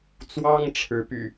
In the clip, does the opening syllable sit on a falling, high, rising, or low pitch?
high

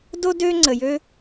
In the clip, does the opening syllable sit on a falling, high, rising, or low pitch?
high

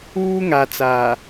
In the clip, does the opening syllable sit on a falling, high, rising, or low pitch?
high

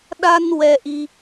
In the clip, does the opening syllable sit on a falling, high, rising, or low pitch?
high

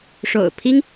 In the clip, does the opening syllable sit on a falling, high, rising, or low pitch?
low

